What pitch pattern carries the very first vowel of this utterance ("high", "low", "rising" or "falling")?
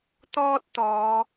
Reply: high